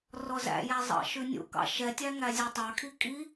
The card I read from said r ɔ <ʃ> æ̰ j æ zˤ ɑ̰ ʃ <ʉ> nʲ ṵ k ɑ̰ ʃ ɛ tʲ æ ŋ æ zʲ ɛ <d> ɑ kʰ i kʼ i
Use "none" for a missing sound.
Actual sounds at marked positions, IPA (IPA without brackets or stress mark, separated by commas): z, ʉ, tˤ